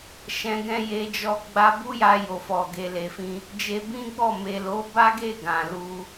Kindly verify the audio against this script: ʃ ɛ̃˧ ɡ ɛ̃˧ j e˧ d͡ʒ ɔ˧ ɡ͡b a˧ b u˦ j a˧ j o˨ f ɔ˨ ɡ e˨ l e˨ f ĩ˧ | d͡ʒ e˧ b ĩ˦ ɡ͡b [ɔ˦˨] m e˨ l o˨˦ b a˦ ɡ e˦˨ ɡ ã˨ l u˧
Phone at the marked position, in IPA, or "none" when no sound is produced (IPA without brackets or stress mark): ɔ˦˨